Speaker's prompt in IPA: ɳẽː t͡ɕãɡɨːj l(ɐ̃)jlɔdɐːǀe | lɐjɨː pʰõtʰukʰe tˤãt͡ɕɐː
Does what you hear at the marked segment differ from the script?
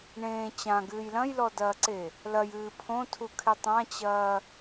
no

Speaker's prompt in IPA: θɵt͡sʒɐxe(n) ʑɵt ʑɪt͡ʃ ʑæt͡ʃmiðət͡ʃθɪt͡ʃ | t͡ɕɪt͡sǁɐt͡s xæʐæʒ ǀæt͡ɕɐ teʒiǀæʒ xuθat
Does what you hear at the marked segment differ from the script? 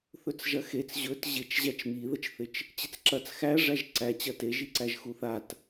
yes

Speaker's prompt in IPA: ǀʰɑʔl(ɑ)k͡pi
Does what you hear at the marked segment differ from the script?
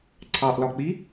yes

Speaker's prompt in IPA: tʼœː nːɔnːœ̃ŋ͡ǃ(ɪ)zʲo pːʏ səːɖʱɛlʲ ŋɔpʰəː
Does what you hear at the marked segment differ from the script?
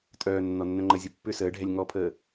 yes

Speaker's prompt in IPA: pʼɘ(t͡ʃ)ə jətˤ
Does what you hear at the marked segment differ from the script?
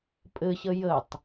yes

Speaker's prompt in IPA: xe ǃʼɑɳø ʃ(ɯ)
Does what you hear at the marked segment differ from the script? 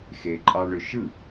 no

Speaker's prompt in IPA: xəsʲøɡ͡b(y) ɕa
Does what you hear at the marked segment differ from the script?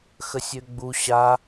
yes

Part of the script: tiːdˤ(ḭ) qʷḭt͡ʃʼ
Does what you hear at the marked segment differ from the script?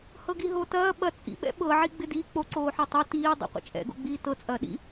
no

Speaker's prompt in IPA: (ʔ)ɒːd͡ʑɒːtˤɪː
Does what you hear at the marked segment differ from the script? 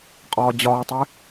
yes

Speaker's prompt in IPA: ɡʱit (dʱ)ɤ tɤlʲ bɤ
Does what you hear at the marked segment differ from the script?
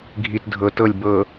no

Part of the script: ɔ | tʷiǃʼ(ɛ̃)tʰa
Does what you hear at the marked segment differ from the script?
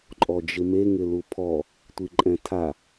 no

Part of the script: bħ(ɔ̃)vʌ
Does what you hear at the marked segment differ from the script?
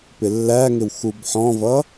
no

